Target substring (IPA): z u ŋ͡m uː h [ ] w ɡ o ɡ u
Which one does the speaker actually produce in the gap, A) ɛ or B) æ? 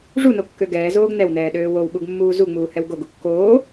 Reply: A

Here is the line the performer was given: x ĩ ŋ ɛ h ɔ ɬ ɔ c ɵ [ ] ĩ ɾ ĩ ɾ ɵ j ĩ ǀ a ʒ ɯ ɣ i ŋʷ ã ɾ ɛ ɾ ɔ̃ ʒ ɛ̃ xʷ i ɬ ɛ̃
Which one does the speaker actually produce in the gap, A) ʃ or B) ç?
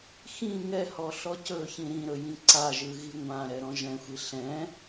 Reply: B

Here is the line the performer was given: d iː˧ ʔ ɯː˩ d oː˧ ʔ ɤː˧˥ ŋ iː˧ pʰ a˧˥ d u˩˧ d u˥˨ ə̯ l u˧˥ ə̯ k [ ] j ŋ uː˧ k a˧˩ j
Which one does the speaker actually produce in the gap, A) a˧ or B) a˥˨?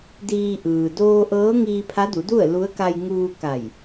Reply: A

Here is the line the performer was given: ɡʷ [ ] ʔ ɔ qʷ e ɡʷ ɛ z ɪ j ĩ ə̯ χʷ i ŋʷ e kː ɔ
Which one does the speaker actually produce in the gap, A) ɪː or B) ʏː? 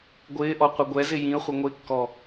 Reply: A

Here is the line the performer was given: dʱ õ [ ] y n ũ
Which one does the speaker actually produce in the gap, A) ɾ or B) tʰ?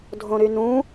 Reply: A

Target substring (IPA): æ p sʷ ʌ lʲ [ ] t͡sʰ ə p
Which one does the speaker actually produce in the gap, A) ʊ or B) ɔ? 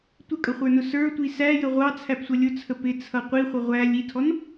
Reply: A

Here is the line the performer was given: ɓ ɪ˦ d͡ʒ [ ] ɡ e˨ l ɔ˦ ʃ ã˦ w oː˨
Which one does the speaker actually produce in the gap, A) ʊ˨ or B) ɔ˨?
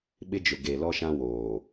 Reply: A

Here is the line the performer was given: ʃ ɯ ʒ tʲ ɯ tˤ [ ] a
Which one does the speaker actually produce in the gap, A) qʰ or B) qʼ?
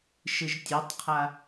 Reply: A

